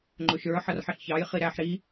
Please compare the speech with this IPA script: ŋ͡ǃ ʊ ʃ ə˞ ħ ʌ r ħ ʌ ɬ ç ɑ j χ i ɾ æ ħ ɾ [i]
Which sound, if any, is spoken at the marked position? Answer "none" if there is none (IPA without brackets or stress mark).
i